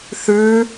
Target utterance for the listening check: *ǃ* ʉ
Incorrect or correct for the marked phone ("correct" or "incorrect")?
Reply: incorrect